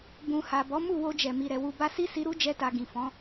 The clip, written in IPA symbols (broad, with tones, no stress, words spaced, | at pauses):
bũ˨ha˨ bɔ˨˦mu˦˨wo˧d͡ʒɛ˨ mi˨ɾɛ˨ wu˧ba˦ si˦si˧ ɾu˦d͡ʒɛ˧ta˨ ɡĩ˨fɔ̃˨˦